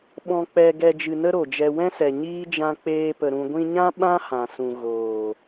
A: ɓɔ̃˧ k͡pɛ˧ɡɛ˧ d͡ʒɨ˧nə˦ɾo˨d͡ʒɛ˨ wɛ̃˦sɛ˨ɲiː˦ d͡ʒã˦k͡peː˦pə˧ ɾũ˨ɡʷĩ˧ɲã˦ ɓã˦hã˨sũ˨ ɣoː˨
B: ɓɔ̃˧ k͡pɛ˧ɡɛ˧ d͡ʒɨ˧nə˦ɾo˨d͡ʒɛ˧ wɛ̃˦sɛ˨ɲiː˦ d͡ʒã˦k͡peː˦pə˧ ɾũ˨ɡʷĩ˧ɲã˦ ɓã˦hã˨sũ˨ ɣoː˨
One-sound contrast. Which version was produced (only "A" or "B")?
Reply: B